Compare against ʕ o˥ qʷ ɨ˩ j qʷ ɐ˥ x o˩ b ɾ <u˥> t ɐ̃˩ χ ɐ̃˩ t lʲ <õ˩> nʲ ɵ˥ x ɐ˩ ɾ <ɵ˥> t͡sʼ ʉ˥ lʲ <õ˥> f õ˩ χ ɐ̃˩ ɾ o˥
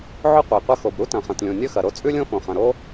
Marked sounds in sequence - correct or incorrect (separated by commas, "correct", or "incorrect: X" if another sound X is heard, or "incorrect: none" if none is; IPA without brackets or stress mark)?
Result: correct, correct, incorrect: o˥, correct